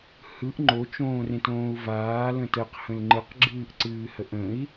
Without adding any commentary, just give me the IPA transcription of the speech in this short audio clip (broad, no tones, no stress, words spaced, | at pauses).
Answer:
hɯʔ ŋ͡ǃot͡ʃõːrẽtõːu̯ vaːlə̃ təqhə̃l ŋ͡ǃɯqɡ͡ǁɨːʔǀɨːhəʔ ə̃i̯